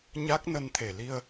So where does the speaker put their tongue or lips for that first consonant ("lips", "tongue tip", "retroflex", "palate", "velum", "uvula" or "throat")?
palate